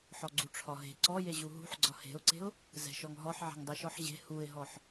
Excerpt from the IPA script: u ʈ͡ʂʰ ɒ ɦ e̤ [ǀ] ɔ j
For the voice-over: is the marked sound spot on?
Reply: yes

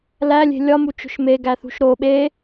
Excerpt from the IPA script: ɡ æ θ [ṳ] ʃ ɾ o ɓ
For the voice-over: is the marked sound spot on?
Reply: yes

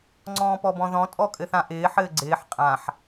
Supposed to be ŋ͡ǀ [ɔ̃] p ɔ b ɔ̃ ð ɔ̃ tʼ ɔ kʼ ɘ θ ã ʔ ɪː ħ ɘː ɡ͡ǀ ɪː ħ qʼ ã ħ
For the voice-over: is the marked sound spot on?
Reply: no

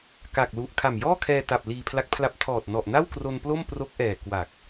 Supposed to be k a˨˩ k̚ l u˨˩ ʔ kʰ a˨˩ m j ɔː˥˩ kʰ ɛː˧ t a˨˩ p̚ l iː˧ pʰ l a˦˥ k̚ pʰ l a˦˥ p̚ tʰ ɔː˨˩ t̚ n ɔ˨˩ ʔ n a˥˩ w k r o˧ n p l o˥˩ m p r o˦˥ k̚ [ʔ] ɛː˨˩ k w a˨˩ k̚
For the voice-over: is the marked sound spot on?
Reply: yes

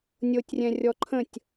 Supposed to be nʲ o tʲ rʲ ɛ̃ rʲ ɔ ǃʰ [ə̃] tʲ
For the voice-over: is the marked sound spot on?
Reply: yes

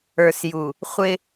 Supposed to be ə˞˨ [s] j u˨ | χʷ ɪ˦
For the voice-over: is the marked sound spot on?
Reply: yes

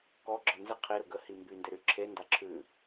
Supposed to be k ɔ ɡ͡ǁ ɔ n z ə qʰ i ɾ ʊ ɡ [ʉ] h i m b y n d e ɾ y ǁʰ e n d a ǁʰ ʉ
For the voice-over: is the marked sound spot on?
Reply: no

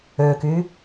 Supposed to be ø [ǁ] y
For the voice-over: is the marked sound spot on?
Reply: no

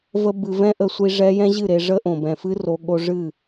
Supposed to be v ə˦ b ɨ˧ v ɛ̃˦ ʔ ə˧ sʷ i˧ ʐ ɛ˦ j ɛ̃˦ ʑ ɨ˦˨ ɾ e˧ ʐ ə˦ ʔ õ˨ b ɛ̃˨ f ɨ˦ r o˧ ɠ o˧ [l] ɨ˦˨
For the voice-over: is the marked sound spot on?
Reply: no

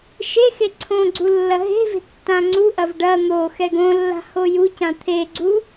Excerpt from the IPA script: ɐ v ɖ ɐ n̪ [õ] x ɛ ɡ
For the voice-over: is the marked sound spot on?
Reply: no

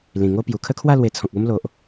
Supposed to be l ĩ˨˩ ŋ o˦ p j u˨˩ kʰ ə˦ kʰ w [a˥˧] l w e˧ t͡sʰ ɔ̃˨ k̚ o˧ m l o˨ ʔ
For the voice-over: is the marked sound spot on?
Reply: yes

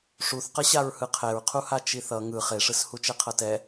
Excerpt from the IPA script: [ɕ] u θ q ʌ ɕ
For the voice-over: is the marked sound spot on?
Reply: no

